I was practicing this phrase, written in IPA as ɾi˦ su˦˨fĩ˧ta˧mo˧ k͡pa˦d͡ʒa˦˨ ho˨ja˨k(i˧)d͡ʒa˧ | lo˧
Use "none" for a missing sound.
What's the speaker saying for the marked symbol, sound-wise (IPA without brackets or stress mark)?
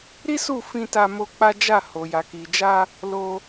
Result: i˨